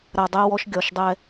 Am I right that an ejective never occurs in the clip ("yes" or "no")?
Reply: yes